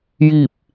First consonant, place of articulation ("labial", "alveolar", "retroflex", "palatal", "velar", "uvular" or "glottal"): palatal